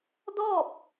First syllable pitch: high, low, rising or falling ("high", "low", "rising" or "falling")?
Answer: falling